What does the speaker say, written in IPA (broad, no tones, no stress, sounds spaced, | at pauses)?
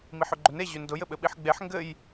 m i ħ ʏ ɡ͡ǃ ʏ n e ʑ ʏ n d ʊ j ɘ ɓ ɘ ɓ i ħ ɡ͡b e ħ ŋ ɡ ɘ j